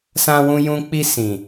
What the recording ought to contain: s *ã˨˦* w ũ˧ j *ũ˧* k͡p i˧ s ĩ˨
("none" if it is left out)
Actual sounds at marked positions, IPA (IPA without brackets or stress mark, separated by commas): ã˧, ũ˦